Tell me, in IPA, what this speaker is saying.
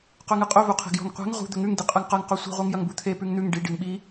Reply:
q ɵ ŋ ɨ qʼ ɵ v u qʰ e̤ ɡ j o̤ ŋ qʷ e̤ ŋ ʁ ṳ d̪ ɵ ŋ ʉ ŋ d i qʼ ɨ ŋ q ɐ ŋ q u sʷ e̤ ʁʷ i ŋ j ɐ ŋ b u t̪ʰ e p ʉ ŋ n̪ ʉ ŋ ɖ i ɖ i ŋ ɓ i

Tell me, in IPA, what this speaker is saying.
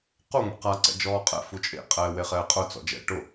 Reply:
q u ŋʷ ḛ q a ǀ ɛ̰ d͡ʒ ɔː qʼ ɛ̰ f u t͡ʃʼ ḛ qʼ ɛː w e χ ɛː qʼ ʊ t͡s ɔ̰ d͡ʒ ɛ̰ ʈ ʊ

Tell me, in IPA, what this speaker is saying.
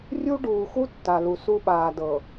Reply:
rʲ u˦ ɖ uː˨ x u˦ tː a˨ l u˨ s u˦ ɓ aː˨ d ɤ˨

